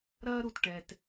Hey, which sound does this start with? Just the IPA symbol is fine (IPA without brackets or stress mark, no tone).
ɾ